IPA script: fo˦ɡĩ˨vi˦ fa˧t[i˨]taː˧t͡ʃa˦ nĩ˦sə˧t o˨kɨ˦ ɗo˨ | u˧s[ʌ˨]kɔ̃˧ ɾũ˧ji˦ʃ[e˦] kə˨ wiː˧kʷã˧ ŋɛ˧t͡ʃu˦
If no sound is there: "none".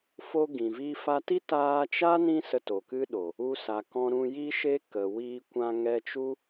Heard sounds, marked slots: i˦, a˨, e˦

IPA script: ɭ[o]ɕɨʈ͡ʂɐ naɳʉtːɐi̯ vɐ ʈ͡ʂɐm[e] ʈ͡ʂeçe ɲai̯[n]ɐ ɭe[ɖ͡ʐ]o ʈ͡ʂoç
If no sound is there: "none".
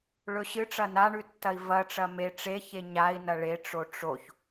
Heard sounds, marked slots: ɵ, e, n, ʈ͡ʂ

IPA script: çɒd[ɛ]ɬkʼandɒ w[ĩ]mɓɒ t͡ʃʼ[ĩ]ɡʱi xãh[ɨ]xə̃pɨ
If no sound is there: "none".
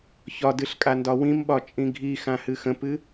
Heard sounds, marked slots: ɨ, ĩ, ĩ, ɨ

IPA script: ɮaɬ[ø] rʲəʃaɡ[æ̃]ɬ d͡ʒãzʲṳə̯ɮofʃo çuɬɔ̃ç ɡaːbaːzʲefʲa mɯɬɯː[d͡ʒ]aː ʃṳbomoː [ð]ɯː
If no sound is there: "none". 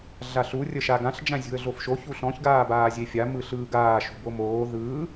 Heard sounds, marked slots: u, ã, ɡ, ð

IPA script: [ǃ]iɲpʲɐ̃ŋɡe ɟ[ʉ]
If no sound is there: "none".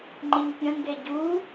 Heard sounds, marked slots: ŋ͡ǃ, u

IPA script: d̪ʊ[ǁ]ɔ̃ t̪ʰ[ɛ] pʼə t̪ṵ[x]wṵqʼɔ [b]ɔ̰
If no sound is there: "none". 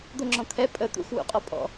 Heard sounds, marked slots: ŋ͡ǁ, ɛ, x, pʼ

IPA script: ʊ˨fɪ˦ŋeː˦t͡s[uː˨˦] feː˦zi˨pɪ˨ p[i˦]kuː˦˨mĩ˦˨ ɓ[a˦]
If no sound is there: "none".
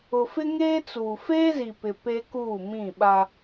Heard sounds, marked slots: uː˨, e˦, a˦

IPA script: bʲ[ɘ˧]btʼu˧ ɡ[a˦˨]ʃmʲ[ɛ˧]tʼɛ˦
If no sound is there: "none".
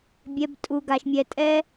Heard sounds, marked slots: ɛ˧, a˧, ɛ˧

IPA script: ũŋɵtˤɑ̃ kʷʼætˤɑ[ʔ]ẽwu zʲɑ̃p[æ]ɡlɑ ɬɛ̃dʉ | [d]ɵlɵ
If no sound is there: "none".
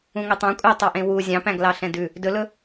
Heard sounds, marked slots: ʔ, æ̃, d

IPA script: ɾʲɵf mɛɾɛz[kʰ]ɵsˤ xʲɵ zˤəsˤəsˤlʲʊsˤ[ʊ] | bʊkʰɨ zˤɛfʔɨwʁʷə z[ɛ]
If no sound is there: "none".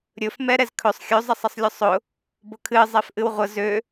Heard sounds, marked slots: kʰ, ʊ, ø

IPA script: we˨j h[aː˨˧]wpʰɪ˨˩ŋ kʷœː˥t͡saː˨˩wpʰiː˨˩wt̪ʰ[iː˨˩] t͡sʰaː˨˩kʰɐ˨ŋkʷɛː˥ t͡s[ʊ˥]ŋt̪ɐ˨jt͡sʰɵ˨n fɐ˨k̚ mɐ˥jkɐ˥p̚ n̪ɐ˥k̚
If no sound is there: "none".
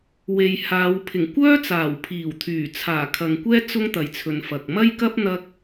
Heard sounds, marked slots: aː˨˧, yː˨˩, ʊ˥

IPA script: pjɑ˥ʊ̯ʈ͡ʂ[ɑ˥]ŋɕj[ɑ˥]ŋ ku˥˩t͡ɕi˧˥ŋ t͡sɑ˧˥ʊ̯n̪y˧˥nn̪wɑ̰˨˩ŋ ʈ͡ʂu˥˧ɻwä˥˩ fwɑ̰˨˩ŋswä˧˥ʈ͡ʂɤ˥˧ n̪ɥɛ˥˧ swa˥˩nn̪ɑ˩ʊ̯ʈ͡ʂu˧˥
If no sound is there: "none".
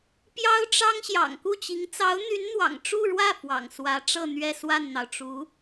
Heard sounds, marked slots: ɑ˥, ɑ̰˨˩

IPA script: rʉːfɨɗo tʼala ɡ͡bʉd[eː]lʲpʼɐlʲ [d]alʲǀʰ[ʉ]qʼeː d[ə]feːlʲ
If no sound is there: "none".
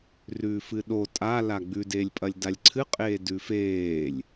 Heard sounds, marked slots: eː, d, ɨ, ʉ

